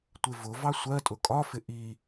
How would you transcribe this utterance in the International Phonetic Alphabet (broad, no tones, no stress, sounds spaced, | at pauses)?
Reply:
tʷ ɪ v ʊ v ɑ sʷ ɜ tʼ ʊ kʼ ɒ f ɪ ʔ i